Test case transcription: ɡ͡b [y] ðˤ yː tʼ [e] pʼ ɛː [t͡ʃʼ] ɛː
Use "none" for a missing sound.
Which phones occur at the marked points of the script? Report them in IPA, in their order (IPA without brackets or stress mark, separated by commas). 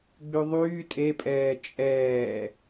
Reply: y, e, t͡ʃʼ